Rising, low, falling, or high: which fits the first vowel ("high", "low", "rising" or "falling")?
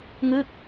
falling